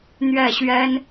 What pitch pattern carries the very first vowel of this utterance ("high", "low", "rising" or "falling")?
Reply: falling